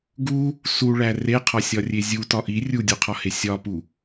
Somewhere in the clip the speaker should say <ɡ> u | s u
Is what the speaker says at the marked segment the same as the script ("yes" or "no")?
yes